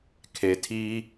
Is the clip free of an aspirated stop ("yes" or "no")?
no